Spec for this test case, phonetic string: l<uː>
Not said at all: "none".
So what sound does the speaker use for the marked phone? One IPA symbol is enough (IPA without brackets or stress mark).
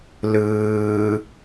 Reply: ɯː